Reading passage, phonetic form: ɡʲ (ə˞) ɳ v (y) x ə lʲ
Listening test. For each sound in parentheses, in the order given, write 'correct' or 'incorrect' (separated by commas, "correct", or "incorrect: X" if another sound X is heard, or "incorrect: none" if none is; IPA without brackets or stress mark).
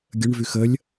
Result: incorrect: ə, correct